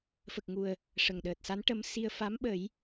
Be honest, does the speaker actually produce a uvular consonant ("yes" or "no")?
no